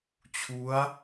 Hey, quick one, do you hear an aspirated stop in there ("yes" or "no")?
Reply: yes